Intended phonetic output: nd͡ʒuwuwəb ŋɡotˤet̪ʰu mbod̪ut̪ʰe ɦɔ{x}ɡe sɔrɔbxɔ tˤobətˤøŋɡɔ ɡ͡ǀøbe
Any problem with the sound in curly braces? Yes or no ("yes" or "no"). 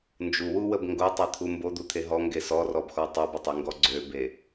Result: yes